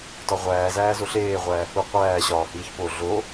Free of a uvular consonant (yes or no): no